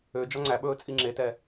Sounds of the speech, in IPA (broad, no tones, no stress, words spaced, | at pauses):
ø d͡ʒɔŋ͡ǀæɓɵː t͡sʼiŋ͡ǁetɛ